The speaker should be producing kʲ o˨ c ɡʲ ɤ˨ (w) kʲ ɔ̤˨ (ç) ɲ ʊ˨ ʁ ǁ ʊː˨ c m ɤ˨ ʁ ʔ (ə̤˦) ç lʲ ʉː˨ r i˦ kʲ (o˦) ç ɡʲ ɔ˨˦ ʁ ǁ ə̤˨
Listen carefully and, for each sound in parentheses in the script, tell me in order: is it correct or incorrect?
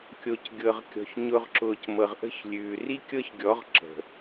incorrect: ʁ, correct, incorrect: ə̤˦˨, incorrect: ɤ˦

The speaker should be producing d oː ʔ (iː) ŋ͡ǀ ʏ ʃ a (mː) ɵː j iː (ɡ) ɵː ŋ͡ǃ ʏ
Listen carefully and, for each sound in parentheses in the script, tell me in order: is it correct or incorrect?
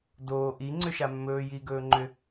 incorrect: i, correct, correct

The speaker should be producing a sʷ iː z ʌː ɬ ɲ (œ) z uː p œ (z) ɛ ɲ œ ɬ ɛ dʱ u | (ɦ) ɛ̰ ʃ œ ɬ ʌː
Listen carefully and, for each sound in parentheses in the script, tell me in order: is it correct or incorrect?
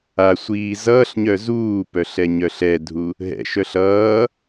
correct, incorrect: ɬ, correct

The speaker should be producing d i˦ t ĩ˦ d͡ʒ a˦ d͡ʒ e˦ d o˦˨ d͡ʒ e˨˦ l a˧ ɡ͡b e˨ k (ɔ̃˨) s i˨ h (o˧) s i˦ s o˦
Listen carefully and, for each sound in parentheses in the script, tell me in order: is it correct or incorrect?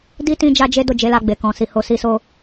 correct, correct

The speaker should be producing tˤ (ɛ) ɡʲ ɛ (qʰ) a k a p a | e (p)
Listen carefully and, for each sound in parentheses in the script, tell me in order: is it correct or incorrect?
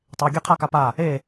incorrect: e, correct, incorrect: none

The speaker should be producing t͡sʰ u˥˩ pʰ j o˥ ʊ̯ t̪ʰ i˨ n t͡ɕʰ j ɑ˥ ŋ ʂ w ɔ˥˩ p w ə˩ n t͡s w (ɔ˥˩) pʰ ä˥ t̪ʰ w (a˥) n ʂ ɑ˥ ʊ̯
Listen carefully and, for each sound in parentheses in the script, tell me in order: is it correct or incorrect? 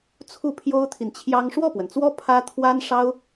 incorrect: ɔ˥, correct

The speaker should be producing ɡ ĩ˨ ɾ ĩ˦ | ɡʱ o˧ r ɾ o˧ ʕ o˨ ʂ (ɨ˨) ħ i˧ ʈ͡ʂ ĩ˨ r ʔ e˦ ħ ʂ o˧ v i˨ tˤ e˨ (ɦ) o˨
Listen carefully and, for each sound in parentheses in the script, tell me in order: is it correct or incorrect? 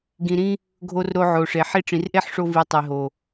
incorrect: e˨, correct

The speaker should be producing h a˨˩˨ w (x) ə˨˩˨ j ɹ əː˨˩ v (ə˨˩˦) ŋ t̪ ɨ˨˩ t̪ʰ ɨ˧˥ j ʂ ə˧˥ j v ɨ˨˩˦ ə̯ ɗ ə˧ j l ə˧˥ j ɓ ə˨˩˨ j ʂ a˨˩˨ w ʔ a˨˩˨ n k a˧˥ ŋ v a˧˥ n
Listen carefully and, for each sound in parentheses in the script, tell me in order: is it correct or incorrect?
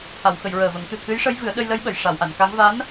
correct, correct

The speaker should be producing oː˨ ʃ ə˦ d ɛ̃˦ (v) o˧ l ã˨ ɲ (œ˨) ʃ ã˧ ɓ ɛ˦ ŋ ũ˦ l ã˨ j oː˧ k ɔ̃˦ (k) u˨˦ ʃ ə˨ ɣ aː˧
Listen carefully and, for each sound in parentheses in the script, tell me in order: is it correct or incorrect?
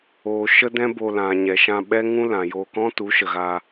incorrect: b, incorrect: ɛ˨, incorrect: t

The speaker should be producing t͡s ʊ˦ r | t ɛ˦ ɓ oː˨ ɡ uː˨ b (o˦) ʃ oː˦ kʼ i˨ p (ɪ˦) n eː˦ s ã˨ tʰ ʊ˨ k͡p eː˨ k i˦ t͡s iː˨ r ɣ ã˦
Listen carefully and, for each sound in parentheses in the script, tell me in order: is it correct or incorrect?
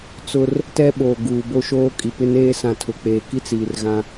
correct, correct

